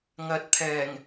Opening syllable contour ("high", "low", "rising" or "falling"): rising